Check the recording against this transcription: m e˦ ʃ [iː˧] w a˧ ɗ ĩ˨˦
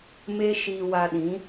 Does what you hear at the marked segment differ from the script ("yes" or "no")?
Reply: no